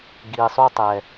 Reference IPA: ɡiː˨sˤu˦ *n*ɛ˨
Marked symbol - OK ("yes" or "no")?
no